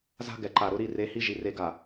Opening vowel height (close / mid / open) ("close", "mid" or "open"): open